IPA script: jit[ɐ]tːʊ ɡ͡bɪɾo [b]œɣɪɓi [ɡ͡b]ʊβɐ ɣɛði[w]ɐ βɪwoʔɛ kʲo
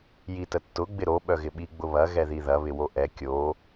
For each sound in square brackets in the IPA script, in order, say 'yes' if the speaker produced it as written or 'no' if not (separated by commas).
no, no, yes, no